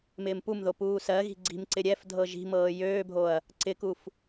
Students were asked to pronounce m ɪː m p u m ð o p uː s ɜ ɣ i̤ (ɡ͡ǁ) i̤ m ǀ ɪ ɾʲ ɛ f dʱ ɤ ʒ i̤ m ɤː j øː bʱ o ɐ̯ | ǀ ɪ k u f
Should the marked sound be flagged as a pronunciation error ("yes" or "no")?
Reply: yes